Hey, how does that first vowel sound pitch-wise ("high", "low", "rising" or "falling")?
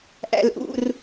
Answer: high